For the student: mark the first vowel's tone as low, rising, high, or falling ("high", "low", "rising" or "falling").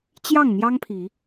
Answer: falling